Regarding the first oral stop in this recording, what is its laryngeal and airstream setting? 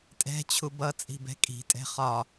ejective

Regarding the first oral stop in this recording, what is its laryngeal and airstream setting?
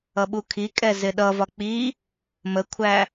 implosive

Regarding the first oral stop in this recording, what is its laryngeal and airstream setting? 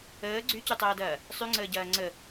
click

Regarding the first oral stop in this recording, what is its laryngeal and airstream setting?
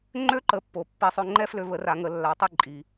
click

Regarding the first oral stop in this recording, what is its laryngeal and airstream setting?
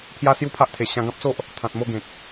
aspirated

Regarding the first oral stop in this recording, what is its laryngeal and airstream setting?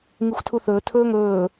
aspirated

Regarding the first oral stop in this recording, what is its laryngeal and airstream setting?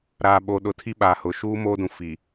implosive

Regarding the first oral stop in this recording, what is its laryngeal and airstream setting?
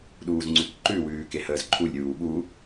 implosive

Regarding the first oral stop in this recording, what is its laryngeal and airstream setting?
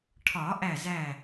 aspirated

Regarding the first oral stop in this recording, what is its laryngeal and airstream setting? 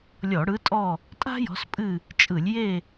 ejective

